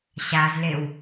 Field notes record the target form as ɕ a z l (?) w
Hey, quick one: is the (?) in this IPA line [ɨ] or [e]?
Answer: e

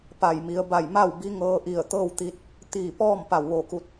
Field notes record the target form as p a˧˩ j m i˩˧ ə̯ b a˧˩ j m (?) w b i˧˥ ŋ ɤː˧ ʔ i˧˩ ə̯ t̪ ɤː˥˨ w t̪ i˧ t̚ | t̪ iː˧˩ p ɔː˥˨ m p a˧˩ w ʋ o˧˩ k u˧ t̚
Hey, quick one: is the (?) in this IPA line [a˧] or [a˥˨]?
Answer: a˥˨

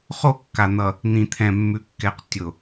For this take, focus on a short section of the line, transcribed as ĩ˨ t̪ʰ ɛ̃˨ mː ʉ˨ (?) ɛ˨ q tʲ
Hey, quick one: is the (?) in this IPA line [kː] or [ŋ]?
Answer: kː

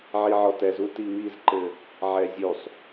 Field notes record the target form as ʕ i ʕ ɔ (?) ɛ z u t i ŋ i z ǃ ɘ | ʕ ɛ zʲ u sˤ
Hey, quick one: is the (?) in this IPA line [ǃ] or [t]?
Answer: t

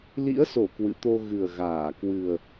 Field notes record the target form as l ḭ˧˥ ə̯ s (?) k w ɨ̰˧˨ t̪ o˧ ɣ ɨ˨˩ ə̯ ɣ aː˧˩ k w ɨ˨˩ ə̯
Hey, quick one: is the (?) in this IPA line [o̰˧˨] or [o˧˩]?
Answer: o˧˩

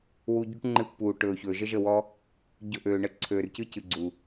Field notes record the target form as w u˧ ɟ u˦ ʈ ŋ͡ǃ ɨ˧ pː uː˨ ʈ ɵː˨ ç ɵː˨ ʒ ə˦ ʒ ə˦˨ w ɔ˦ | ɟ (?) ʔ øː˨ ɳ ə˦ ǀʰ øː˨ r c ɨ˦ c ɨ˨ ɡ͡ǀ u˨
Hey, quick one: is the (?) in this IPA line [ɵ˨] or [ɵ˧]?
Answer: ɵ˧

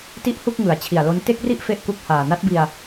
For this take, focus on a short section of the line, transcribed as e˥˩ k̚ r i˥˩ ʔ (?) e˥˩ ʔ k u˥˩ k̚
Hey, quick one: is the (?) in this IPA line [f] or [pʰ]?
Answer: f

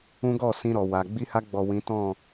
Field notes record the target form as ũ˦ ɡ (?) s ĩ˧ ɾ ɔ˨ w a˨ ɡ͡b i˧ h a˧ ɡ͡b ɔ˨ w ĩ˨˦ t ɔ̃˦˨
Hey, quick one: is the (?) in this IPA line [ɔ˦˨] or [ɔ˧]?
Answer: ɔ˦˨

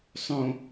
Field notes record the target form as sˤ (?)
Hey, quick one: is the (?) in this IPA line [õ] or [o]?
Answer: õ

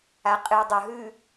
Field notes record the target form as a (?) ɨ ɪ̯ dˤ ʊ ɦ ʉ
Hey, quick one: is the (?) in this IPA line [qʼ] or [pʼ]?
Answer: qʼ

